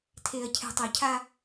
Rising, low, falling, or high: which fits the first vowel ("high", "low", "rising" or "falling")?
low